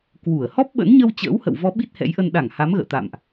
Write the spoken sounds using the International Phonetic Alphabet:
k w u˧˩ ə̯ h ɔ˦˥ p̚ ɓ ə̰˧˥ n ɲ ə˧ w t͡ɕ ə̰ː˧˥ w h ə̰˧˨ w v ɔ˨˦ ɓ i˦˥ t̚ h ɛ̰˧˥ j ʔ ə˧ n ɗ a˧˩ ŋ h a˨˦ m ɣ ə̰ː˧˨ t̪ a̰˧˨ m ʔ

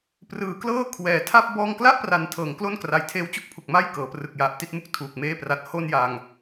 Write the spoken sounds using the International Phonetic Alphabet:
p r ɯː˩˦ k l ɤː˥˩ kʰ w ɛː˩˦ tʰ a˥˩ p̚ b ɔː˧ ŋ k l a˥˩ ʔ p r a˩˦ n tʰ ɤː˩˦ ŋ k l o˥˩ n k r a˨˩ j tʰ eː˦˥ w t͡ɕ u˦˥ k̚ pʰ u˨˩ k̚ m a˥˩ j k ɤː˩˦ p r ɯ˨˩ k̚ j a˨˩ ʔ t i˥˩ t̚ m u˥˩ k̚ tʰ uː˨˩ k̚ m eː˥˩ p r a˦˥ t̚ h o˥˩ n j a˧ ŋ

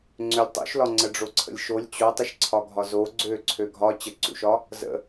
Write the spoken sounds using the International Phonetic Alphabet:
ŋ͡ǀ ø lʲ tˤ ṵ ʃ l ɒ ŋ͡ǀ ə ɖ͡ʐ o ǀʰ ə̰ lʲ ʃ o lʲ t͡ɕ o tˤ ə ʃ ǀʰ ɒ ɡʱ ɒ z o ɡ͡ǀ ø ǀʰ ø ɡʱ ɒ t͡ɕ ə ǀ ṵ ʃ ɒ | z ə̰

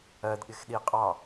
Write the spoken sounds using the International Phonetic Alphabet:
ɜ d ɠ ɪ x ɗ i qʼ ɑ

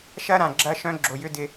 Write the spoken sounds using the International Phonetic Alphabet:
ʃ ɐ˦ ɾ ã˨ ɡ͡ǁ ɐ˦ ʃ œ̃˦ ɡ͡ǁ o˨ j ʏ˦ d ɪ˦

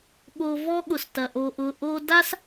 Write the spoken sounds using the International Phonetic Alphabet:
ɠ o˧ v ɔ˦ ɠ ʊ˨ s t ɐ˨ ʔ o˨ ʔ ʊ˨ ʔ o˧ d a˦ s

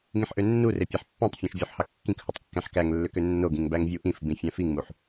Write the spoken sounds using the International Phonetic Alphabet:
ŋ ĩ ħ ʔ ø nː u r e pʲ æ ħ pː æ̃ tˤ fʲ æ̃ ʃ vʲ o ħ h ɑ kː ĩ k h o tˤ kː æ̃ ħ k æ ŋ lː ø k ø nː o ɡ ĩ ŋ b æ ŋ vʲ u ʔ ĩ f b ĩ fʲ æ̃ f i ŋ m u ħ

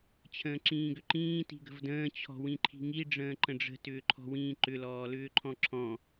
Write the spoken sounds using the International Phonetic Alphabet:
t͡ɕʰ ə̃ː ǁ ĩː ɡ ʏ ǃ ĩː t i̤ ɡ ə̤ v d ə̃ː t͡ɕʰ ɔ̤ w ĩ ǃʰ i̤ ŋ i ɖ͡ʐ ə̃ː ǃ ə̃ ɖ͡ʐ ə̤ t ʏː ǃʰ ɔ̤ w ĩː ǃ ʏ l ɔː l ʏː ǃʰ ɔ̃ ǁʰ ɔ̃

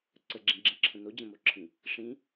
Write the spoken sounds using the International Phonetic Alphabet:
ǀ ə ɡ͡ǁ ĩ ɡ͡ǁ ĩ ǁʰ ə̃ n o d͡ʑ ə̃ m o ǁʰ ĩ | ʂ ĩ

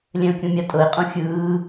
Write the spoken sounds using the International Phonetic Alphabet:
lʲ ɛ̃ ʊ̯ kʲ ũ mʲ a tʼ ɤ ɪ̯ qʼ ũ xʲ ɯː

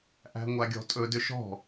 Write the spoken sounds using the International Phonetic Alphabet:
ʔ æ̤ ŋʷ a ɡʲ ɔ̤ tʼ ɵ d ʏ ʃ ɔ̤

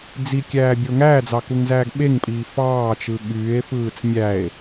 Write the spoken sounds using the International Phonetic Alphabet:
d͡z i kʲ æː bʲ o ŋ æː d͡z ɑ k u ŋ z æː ɡ ɓ e ŋ pʼ iː f ɑː t͡ʃ ɯ ɠ yː e̯ f ɯː t͡s mʲ æ e̯

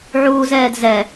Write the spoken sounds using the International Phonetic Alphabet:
ʕ uː z ɛː d z ɛ

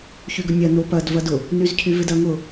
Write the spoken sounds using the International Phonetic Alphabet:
ç y ɡ ʊ nʲ ɐ n o p ɐ d v ɐ d ʊ | n y z cʰ y v ɪ d ɐ ŋ ʊ

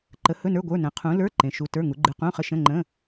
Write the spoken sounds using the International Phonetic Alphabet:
ǃ ə˨˥ h ɵ˧˥˧ n ə˞˧˥˧ ɡʷ ə˞˧˥˧ n ə̃˨˥ qʰ ũ˨˥ l ə˞˧˥˧ ǃ ẽ˨˥ ʃ u˧˥˧ t ə˞˧˥˧ ŋ u˨˥ ɡ͡ǃ ɨ˧˥˧ q ũ˧˥˧ χ ə˧˥˧ ʃ ə̃˧˥˧ ŋ͡ǃ ə̃˧˥˧

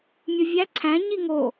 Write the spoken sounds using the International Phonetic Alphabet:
mʲ ʊ vʲ æ ǀʰ æ̃ ɲ i ŋ o

